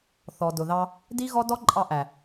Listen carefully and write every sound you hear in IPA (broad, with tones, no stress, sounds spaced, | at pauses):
θ ɔ˨ d ʊ˨ ð ɑ˧ | d i˦ ɣ ɔ˦ d ɔ˦ ǃʼ ɑ˧ ʔ æ˨